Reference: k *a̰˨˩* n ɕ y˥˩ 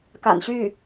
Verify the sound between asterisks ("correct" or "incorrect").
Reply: correct